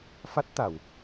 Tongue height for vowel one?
low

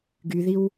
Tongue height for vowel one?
high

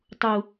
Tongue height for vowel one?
high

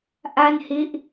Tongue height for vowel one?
low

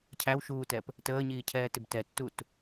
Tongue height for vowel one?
low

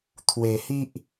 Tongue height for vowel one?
mid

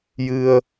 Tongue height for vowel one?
high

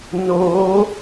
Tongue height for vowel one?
mid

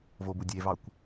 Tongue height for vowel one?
mid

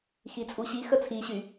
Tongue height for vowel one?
high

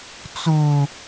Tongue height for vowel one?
high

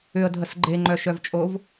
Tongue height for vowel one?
high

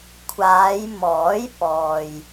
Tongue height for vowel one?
low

